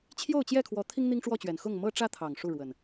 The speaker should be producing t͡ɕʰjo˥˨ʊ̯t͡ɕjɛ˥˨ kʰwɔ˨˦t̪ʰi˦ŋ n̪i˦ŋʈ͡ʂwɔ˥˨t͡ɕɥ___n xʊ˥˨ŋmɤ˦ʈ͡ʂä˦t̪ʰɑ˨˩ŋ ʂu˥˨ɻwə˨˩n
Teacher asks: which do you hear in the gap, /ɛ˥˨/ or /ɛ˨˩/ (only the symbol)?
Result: ɛ˨˩